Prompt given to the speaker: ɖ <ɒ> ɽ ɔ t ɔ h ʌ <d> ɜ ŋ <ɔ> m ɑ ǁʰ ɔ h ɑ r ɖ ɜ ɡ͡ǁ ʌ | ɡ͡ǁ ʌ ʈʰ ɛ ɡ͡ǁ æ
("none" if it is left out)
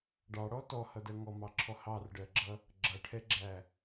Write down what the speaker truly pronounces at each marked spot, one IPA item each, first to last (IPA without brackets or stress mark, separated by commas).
ɑ, d, ɔ